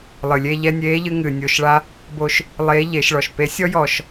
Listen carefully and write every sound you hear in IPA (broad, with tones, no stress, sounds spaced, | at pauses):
lˠ ɨ˩ lʲ e˧ ʎ ɛ˧ nʲ eː˧˥ ʎ ɨ˧ ŋ ɨ˩ nʲ o˩˧ ʃ ɭ a˧˥ | b o˧ ʃ | lˠ eː˧˥ ʎ e˩˧ ʃ ɭ ɔ˩ ʃ p e˧˥ sʲ ɔ˥ j ɔː˩ ʃ